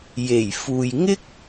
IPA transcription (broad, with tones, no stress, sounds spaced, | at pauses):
j e˨˩ j f uː˨ j ŋ ɪ˥ k̚